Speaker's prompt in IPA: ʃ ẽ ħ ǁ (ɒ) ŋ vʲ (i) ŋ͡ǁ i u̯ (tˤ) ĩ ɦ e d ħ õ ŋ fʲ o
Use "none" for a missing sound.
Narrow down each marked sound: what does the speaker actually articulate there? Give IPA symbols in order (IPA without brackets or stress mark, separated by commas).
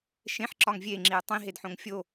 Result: ɒ, e, tˤ